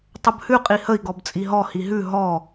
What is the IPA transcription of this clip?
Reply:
tˤəbhʉ qʼihəi̯ ɡɔbt͡sʼiɦɔ hiɦʉ ɦɔ

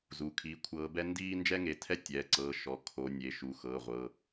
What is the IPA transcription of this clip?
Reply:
zu˩˧˩kʰi˨˦kʷʰɤː˨˦bɛ˥ ndiː˥nd͡ʒɛ˥ŋe˨˦tʰɛ˥ tʲɛː˩˧˩ǀɤː˨˦ʃɔ˩˧˩ kʰo˨˦ nʲe˩˧˩ ʃu˩˧˩xɤː˩˧˩ʁʷɤ˩˧˩

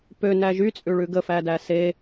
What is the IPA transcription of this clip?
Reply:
pønæ ʒyt͡sʼʉɭʉ ɡəfædæ se

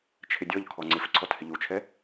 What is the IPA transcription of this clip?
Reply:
t͡ʃʰɪdʲɔʎ kʰɔŋ͡ǀɪf ǀʰɔthɪʎut͡ʃʰɛ

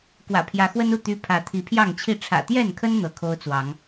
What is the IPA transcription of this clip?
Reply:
kwä̰˨˩pʰjä˨˦xwə˦nu˥˨ t̪y˦ pʰä˨˦t̪ʰi˨˦pʰjɑ˥˨ŋt͡ɕʰi˥˨ ʈ͡ʂʰä̰˨˩t̪jɛ˥˨nkʰə˦n n̪ɤ˨˦kʰo˦ʊ̯t͡swɑ˨˦ŋ

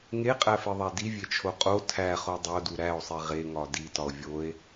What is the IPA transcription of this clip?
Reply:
ŋeqʼæfeðˤæ divʲet͡ʃʰo qʼo tʰæχo dˤodu ɾæo̯sˤi ʁeŋɒ ditɒo̯ vʲoe̯

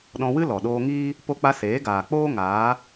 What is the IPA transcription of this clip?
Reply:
ɗɔ̃˧wɨ˦ lɔ˨ ɗoː˧ŋiː˦ | po˧k͡pa˧ seː˨˦ɡaː˨k͡poː˦ ŋaː˨˦

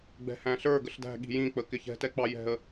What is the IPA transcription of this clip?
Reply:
ɡ͡bɛ̤hæ̃ɬə˞ ɡəɬdæ̤ɠi̤ jĩk͡pə kɪçɛ̤tɛ k͡pɑjɛ̤ə̯

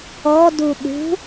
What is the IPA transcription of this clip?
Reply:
ɔdu ɗṳ

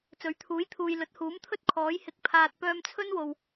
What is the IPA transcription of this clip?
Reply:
t͡sɵ˨˥ɥt̪ʰuː˨˥jt̪ʰuː˨jlɵ˨˥t̚ huː˨˥mt̪ʰɵ˥t̚kʰɔː˨˥j hɪ˧k̚pʰaː˧t̚ pœː˧mt͡sʰɵ˥nwo˨w

